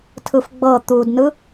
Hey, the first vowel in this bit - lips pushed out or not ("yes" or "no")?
no